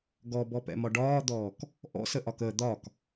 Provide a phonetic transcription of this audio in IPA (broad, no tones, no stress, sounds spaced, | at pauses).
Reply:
ɡ ɔ b ɔ p ɛ̰ m ɒ ɖ ɒː d̪ ɔː k | ʔ ɔ̰ s ə ʔ ɒ k ə d̪ ɒ k